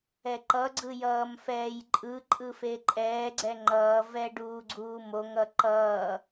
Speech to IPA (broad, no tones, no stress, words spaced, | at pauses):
ɛǃʌɡ͡ǀɯ jʌːmfɛːjǃʼɯǃʼɯ feǃʼɛːɡ͡ǀɛ ŋ͡ǃʌːvɛ ɖuːɡ͡ǀuːmoŋʌ ǃʌː